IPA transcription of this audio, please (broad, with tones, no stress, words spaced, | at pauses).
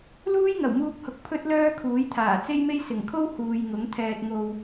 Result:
luː˥jŋɐ˨˩wmuː˧k̚hʊ˨k̚ pʰɵ˥t̚ lœː˥kʰuː˨˥jt̪ʰaː˨˩ t͡se˥jme˥j sɪ˨˩ŋkʰo˥w huː˨j ŋʊ˨˥ŋ t̪ʰɛː˨t̚ŋo˨w